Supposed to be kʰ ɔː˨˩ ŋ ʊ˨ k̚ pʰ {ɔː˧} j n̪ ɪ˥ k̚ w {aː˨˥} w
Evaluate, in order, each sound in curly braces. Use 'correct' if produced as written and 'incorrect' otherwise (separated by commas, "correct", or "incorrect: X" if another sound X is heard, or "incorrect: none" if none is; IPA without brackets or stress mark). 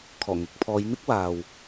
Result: incorrect: ɔː˨˧, incorrect: aː˨